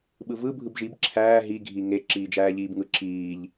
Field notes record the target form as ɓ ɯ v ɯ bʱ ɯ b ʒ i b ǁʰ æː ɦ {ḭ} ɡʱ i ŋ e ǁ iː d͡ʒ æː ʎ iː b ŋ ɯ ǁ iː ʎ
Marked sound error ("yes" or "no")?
yes